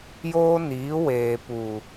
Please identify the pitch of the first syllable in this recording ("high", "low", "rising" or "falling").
high